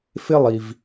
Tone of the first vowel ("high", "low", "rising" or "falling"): high